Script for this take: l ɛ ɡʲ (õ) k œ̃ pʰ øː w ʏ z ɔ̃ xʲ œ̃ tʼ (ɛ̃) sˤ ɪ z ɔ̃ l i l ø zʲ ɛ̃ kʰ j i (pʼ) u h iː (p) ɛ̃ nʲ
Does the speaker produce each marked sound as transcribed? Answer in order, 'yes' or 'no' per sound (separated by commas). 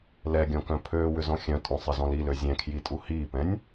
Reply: no, no, no, yes